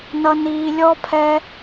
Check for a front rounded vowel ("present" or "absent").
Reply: absent